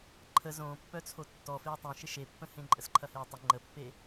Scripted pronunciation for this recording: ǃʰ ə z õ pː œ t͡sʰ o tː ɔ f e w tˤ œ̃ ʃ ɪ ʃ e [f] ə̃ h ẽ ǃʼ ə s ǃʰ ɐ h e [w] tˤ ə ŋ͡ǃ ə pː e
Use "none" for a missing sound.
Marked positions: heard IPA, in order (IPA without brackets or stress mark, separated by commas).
pː, w